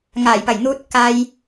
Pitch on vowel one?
low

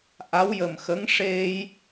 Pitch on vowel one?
rising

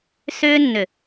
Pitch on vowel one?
high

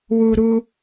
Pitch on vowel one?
high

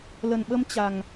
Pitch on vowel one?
low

